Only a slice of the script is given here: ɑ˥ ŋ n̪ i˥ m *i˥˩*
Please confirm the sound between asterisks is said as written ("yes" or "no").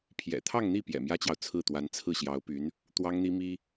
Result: no